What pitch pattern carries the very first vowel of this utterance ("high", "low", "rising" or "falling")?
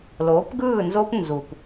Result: rising